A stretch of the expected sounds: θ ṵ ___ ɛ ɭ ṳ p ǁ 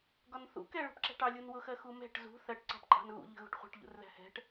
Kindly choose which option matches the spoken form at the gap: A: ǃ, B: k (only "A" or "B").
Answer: B